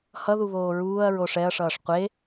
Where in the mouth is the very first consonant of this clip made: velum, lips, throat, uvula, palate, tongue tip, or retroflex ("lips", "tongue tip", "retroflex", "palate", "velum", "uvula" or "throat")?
throat